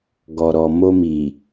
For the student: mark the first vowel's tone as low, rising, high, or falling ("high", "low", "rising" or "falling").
low